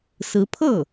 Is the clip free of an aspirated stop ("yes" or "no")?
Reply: no